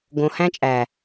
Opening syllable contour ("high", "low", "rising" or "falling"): low